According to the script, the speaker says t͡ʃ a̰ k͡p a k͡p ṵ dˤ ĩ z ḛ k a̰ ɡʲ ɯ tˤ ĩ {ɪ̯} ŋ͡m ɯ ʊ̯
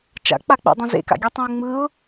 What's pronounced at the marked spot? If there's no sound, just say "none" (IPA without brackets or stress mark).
ʊ̯